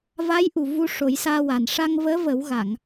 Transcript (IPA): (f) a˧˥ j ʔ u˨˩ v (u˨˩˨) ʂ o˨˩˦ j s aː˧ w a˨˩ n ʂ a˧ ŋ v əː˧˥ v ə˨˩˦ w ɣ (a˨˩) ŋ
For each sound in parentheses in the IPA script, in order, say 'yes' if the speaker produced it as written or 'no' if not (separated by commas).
no, no, no